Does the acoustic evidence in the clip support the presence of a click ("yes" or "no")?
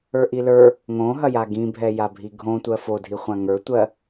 no